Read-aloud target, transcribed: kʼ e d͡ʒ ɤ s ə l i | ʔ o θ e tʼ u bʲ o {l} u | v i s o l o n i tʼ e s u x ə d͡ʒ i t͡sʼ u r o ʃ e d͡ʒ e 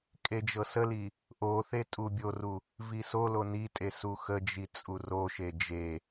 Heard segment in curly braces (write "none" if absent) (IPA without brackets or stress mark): r